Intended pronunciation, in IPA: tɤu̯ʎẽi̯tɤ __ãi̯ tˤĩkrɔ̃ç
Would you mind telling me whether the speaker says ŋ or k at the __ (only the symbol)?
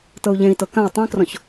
k